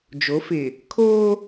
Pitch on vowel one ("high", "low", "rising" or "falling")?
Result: rising